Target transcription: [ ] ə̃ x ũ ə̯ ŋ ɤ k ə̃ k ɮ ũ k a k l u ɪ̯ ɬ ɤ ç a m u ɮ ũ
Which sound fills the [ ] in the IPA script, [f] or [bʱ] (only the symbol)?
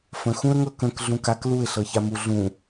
f